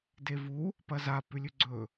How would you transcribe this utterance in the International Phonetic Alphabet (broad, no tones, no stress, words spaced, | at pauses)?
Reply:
devu | pɐza pʉlʲʉɡ͡ǀɵ